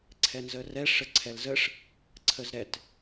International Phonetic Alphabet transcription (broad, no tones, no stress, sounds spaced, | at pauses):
ǀʰ ɛ n z ə r ɛ ʂ ə ǀʰ ɛ l z ə ʂ | ǀʰ ə z ɾ ɛ t